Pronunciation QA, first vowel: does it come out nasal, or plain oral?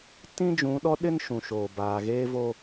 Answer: nasal